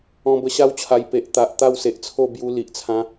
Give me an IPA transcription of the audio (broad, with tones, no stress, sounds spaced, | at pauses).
ɔ̃˧ b ə˧ ɕ a˦ w t͡ɕʰ a˧ j p e˨ ʔ t̪ a˨ ʔ t̪ a˥˧ w s e˨ ʔ t͡sʰ o˥˧ b j u˧ l i˨ ʔ t͡sʰ ã˧